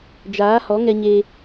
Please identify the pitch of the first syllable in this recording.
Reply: rising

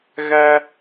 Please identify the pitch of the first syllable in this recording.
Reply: high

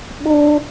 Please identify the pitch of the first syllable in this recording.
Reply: high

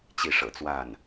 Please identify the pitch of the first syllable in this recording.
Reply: falling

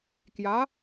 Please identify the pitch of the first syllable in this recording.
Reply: rising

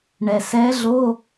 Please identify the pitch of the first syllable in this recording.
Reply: low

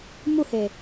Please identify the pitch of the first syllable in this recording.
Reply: falling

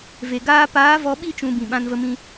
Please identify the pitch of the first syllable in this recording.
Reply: low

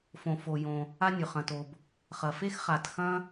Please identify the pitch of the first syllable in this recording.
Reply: low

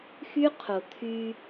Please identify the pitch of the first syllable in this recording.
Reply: high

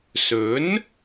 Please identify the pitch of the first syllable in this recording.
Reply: rising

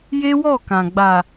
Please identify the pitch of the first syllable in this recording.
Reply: high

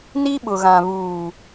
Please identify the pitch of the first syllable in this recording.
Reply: high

